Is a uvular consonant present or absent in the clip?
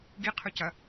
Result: present